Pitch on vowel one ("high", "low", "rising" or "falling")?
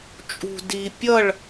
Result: low